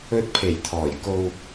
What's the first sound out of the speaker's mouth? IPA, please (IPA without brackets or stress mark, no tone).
ɵ